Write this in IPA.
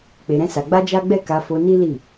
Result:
k͡pe˧ɾɛ̃˦sa˧ ɡ͡ba˦d͡ʒa˦ ɡ͡bɛ˦˨ka˧fo˧ ni˦li˦˨

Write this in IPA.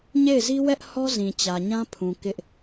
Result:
ɲe˦˨ɪ̯zi˦wɛ˦ʔhɔ˦ zĩ˨t͡ɕä˨ɲã˦pʰũ˨ kɪ˦ʔ

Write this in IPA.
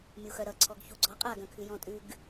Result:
mʲuxœɾʌ ǀʰɔɡçuɡ͡ǀɔ qʼa ɡœ̃kʰʉjɔ̃tʼʉɡ

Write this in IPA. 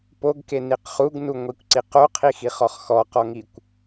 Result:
poɡkeniq χuɡnuŋʷikʷǀi qoqʰixiχɔχ xɔqɔŋikʷ

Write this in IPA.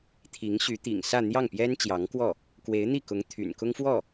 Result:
t̪ʰi˧˥ŋɕy˧˥t̪ḭ˨˩ŋ sä˥˧n̪jɑ˥˩ŋpjɛ˥n t͡ɕjɑ˧˥ŋkwɔ˥˩ | kwe˧˥ɪ̯n̪i˥˩kʊ˧˥ŋ t̪ʰy̰˨˩nkʊ˥ŋfwɔ˥˩

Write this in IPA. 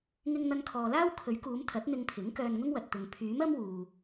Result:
ŋɪ˧ŋn̪ɐ˧ŋkʰɔː˨laː˥w kʰɵ˨˥ɥkuː˨˧m t̪ʰɐ˨˥t̚n̪ɪ˧ŋpʰɪ˨˥ŋ kœː˧nŋʊ˥ŋwɐ˨t̚t̪ʊ˨ŋ pʰyː˨˥mɐ˥m wuː˨

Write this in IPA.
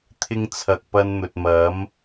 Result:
t̪ʰɪ˧ŋ t͡sʰɐ˨k̚ pɐ˧nn̪ɵ˨t̚mɐ˨˥m

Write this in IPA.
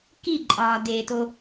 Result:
kiǃʼɒːdeːto

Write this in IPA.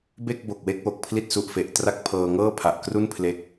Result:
be˥˩k̚bo˨˩k̚we˥˩k̚ wo˨˩k̚pʰli˥˩t̚su˨˩ʔfe˨˩ʔ tra˥˩k̚pʰɤː˧ ŋɤː˥˩pʰa˨˩ʔkru˥˩n pʰle˦˥k̚

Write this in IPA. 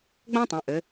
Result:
ɡ͡bə̃ː˥tˤə̃˩˧ʔɘ˩˧

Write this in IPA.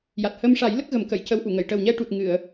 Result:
ja˨˩t̚həː˧m ʂa˨˩˦j lə˦˥k̚ɣə˨˩˦mkə˨˩˨j cə˧˥wʔu˨˩˨ŋə˨˩˨j ʈəː˨˩wɲɛ˧ ʈu˨˩t̚ ŋɨ˨˩˨ə̯

